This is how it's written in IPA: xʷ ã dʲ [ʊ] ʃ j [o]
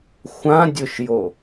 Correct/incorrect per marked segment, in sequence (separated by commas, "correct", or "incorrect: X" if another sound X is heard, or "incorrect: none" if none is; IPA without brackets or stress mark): correct, correct